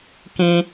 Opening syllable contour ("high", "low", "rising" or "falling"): high